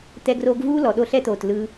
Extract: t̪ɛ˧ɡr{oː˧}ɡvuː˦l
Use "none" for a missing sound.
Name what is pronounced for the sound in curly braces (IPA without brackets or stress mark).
oː˧